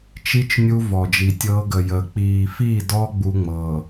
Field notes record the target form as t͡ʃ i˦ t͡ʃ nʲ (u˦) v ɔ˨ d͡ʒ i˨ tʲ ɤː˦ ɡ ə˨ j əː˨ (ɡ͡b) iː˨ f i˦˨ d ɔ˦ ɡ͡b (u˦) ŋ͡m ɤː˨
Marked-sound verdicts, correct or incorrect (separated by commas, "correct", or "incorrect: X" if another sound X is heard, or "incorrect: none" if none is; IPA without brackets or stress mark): correct, incorrect: k͡p, correct